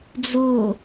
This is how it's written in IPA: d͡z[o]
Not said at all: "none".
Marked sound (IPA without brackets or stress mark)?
o